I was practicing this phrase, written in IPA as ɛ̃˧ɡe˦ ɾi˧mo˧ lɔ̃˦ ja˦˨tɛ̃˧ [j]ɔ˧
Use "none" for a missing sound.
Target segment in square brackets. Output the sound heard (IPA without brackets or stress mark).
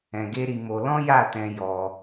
j